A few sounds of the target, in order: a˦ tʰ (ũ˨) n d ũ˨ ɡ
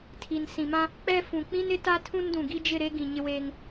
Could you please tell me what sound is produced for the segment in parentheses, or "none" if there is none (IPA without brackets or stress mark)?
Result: ũ˦